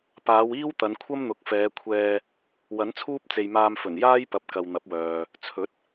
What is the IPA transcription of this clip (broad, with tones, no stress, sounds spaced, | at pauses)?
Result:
p aː˨˧ w iː˥ w t̪ ɐ˨˧ n kʷʰ ɐ˥ m n̪ ʊ˨ k̚ f ɛː˨˧ kʷʰ ɛː˧ | w ɐ˨˥ n t͡sʰ uː˥ p̚ t͡s e˨ j m aː˧ m f ɵ˨˩ n j aː˥ j p ɐ˨˥ p̚ k ɐ˨ w n̪ ɐ˨˥ p̚ w œː˨ | t͡sʰ ɵ˨˥ t̚